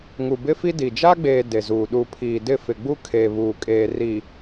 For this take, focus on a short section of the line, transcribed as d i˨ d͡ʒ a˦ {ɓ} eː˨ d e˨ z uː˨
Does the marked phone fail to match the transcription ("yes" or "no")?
yes